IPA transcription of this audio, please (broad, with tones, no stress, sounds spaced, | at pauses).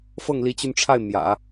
f ɤ˥˩ ŋ l i˧˥ t͡ɕ y˧ n ʈ͡ʂʰ a˥˩ ɪ̯ m j ä̰˨˩˦